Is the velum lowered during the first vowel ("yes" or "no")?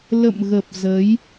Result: no